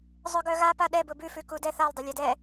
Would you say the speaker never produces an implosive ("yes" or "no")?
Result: no